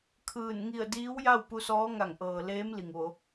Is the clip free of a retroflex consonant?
yes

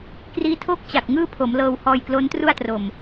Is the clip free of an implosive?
yes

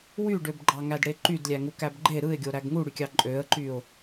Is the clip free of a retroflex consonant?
no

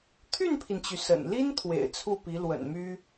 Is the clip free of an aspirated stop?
no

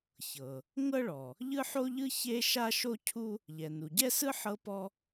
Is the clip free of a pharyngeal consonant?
no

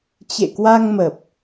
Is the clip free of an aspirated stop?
yes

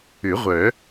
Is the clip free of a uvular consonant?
no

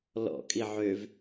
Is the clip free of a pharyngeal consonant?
no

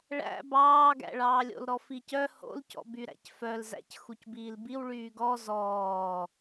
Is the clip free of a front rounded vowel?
no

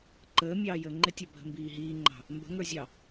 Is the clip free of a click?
no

